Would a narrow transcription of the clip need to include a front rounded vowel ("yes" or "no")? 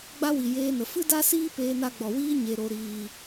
no